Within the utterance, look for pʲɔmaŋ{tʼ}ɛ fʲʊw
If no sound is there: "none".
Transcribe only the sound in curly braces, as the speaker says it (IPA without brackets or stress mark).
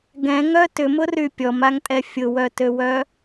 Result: tʼ